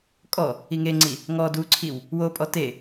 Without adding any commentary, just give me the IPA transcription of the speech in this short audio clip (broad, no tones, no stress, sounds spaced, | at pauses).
kʼ ɔ | i ŋ e ŋ͡ǀ i | ŋ ɔ d u ǀʰ i w | w o pʼ ɔ t e